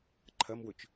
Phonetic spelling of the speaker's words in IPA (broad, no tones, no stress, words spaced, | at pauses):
ǃʰɐmwɵt͡ʃ